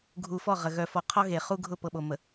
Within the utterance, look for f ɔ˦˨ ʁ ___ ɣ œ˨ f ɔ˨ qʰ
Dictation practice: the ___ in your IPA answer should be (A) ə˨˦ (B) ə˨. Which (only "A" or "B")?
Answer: B